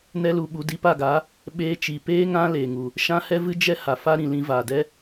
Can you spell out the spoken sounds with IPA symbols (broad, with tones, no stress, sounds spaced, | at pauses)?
n ɛ˦ l u˧ ɓ u˧ d i˧ p a˦˨ ɡ a˨˦ | ɓ eː˧ t͡ʃ i˨ p eː˦ ŋ ã˦ l eː˨ ŋ u˨ | ʃ ã˦ h ɛ˦ v ɨ˦ d͡ʒ ɛ˦ h a˨ f a˦ ɾ ĩ˨ l ĩ˧ v aː˨ d ɛ˦